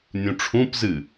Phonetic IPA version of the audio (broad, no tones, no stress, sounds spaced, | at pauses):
nʲ ũ ʈ͡ʂʰ ũ p z ɨ